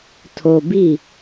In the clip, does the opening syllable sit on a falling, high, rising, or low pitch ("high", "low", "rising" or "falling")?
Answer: low